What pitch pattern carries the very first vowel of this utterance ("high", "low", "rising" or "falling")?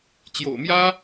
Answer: low